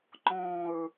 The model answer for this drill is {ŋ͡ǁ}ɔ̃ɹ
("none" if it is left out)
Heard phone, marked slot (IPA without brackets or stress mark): ŋ͡ǃ